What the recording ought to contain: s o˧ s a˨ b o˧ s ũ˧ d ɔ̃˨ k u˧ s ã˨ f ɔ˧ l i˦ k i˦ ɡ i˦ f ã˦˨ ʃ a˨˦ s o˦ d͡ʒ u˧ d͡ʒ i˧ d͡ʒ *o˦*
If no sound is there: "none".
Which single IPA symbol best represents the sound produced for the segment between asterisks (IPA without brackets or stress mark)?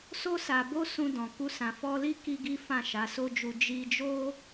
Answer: o˦